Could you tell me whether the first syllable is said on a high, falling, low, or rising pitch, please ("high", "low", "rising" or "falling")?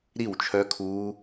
falling